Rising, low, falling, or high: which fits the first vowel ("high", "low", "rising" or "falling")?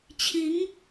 rising